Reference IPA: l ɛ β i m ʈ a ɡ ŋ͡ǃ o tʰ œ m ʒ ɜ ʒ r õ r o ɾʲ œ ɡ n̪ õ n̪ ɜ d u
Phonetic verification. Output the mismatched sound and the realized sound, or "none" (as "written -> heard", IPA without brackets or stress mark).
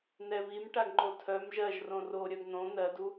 l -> n̪